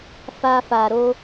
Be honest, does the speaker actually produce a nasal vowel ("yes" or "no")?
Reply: no